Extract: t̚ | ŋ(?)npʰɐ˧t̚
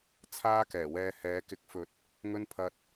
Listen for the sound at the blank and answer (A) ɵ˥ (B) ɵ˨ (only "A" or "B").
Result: A